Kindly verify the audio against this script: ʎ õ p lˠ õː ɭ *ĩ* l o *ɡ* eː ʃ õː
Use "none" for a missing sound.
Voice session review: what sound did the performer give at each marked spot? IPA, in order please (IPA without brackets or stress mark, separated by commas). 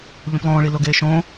i, ɡ